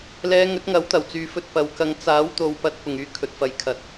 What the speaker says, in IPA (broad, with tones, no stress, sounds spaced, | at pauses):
l ɛː˨˧ ŋ ɵ˨˥ t̚ ŋ ɐ˨˥ w t̪ ɐ˨˩ w t͡s yː˨ f ɵ˧ t̚ p ɐ˨ w k ɐ˧ ŋ t͡s aː˨˥ w t̪ o˨ w p ɐ˨˥ t̚ p ʊ˨ ŋ yː˧ kʰ ɵ˨ t̚ f ɐ˨ j kʰ ɐ˨ t̚